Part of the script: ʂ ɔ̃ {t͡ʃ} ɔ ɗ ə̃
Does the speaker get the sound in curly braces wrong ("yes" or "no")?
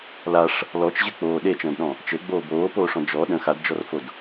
yes